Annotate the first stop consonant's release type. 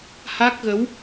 plain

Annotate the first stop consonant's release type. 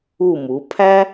aspirated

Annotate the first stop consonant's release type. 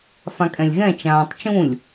ejective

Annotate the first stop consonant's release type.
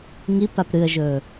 plain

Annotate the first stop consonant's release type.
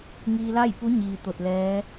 plain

